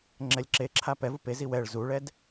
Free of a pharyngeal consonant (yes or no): yes